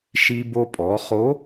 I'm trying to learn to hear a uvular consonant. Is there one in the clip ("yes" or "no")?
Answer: yes